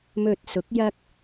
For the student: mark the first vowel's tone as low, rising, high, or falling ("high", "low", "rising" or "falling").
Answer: low